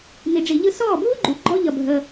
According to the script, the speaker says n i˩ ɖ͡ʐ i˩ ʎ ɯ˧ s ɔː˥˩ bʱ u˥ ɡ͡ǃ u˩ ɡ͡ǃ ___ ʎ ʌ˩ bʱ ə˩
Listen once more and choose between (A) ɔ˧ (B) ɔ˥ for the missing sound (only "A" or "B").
A